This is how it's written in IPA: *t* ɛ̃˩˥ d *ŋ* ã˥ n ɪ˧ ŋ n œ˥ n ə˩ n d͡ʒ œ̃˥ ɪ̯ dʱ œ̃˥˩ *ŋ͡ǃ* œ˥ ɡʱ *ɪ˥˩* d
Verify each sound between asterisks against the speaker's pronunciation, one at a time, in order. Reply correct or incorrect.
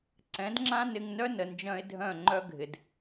incorrect: ǀ, incorrect: ŋ͡ǁ, correct, incorrect: ɪ˩

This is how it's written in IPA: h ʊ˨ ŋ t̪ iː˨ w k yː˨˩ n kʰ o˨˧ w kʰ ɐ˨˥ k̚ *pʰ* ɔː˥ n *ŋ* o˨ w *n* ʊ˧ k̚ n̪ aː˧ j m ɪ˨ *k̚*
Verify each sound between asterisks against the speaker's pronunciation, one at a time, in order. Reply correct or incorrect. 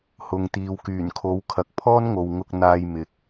correct, correct, incorrect: ŋ, correct

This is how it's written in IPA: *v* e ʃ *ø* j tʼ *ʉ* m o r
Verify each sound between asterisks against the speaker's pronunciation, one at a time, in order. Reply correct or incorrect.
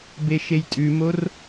incorrect: b, incorrect: e, correct

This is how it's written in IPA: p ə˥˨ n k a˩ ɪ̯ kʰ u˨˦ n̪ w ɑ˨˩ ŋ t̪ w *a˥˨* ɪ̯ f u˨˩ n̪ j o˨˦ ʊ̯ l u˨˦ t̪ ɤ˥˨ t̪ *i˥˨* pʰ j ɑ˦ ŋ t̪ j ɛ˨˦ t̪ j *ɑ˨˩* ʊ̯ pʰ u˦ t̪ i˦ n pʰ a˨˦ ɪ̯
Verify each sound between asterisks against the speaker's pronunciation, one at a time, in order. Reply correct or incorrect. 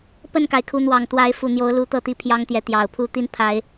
incorrect: a˨˦, correct, correct

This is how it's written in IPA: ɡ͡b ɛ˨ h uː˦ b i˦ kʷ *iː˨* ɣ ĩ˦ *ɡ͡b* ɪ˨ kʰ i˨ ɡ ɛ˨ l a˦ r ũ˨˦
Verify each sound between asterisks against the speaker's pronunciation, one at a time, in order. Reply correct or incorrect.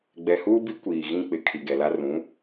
correct, incorrect: k͡p

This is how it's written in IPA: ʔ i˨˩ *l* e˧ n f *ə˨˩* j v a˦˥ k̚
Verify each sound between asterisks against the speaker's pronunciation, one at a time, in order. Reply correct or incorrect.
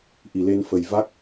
correct, correct

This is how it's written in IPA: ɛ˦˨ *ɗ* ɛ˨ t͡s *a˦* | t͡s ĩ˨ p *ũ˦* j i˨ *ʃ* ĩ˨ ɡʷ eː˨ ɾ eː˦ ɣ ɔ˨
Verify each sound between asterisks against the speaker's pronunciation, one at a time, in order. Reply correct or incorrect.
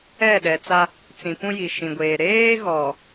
correct, correct, correct, correct

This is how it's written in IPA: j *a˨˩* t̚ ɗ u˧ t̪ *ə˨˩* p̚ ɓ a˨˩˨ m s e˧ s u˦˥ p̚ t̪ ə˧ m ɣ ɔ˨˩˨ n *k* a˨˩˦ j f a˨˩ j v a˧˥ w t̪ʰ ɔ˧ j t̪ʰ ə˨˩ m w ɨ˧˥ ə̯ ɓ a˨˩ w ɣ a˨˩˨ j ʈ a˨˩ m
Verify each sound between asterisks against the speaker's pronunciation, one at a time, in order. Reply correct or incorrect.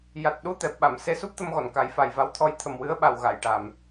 correct, incorrect: ɛ˨˩, correct

